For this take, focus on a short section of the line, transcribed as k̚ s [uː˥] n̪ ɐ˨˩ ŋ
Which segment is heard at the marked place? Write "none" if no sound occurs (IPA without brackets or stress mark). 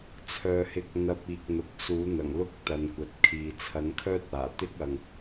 uː˨˥